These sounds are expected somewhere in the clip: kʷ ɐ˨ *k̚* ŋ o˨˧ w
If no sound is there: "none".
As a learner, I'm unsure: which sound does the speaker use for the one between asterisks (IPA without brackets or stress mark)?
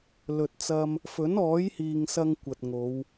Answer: t̚